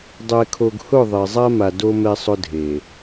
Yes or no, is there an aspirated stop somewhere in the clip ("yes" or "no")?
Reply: yes